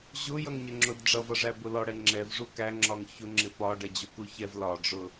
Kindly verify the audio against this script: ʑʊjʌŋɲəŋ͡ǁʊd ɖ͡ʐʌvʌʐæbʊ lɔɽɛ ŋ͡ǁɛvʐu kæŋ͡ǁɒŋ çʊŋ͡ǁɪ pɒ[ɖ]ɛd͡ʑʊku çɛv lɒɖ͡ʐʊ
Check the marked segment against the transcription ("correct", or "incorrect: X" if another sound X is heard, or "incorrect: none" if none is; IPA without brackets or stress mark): correct